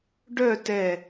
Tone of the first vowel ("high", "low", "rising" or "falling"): falling